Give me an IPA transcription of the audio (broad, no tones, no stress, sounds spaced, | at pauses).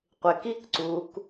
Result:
qʷ ɪ k i k ǀ u k